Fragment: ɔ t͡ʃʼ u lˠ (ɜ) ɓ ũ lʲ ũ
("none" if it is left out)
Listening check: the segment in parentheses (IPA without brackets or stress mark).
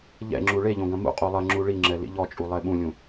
ɛ